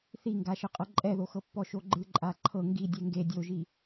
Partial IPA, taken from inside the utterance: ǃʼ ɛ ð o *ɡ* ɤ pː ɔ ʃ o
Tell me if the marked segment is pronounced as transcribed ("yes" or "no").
no